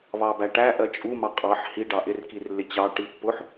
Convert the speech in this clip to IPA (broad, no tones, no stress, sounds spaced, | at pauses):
β ɑ b æ ʈ æ ʔ ɜ t͡ʃʼ u m ɑ qʼ ɑ ħ h i ɖ ɑ ʔ ɪ r k i r lː ɪ t͡ɕ ɑ ʈ i pː ʊ ħ